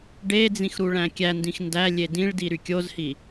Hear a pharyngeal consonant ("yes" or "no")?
no